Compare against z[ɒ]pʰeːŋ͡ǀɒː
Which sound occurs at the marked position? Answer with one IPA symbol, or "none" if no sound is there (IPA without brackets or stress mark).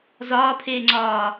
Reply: ɒː